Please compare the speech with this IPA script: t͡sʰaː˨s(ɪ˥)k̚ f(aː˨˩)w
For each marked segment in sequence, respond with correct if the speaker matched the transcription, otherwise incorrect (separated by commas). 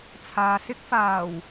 correct, correct